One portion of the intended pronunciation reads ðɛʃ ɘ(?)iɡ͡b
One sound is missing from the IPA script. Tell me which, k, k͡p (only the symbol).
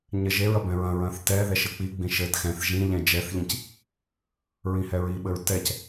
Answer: k͡p